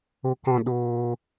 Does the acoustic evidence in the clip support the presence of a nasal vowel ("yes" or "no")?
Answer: yes